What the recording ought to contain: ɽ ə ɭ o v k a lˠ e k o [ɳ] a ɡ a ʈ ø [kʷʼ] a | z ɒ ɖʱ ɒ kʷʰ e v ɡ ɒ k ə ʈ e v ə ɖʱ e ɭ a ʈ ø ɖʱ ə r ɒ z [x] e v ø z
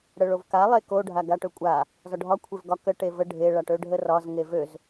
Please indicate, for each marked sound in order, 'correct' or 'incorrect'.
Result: incorrect: ɖʱ, correct, incorrect: ŋ

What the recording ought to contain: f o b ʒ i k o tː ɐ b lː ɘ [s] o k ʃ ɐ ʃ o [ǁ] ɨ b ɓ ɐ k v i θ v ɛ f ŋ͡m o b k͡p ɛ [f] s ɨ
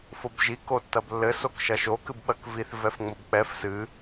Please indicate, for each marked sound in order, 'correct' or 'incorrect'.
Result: correct, incorrect: k, correct

